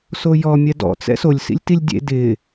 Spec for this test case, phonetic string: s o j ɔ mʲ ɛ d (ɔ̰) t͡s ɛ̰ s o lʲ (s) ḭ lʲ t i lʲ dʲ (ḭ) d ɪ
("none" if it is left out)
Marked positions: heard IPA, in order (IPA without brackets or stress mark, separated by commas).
ɔ̰, s, ḛ